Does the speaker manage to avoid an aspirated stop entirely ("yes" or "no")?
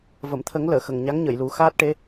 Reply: no